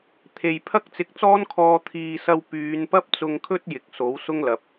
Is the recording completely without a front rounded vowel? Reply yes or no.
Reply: no